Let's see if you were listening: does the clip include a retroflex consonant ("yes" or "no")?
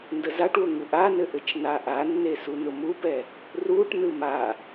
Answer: yes